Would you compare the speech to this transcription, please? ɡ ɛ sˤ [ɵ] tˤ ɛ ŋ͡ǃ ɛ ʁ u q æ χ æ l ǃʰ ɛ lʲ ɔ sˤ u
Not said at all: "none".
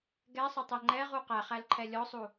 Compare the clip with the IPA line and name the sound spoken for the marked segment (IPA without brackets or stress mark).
ɵ